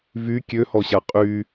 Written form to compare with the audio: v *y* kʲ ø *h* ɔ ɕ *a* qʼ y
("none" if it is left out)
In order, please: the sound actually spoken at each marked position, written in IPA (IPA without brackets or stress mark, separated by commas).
y, h, a